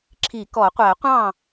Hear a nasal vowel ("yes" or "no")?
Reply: yes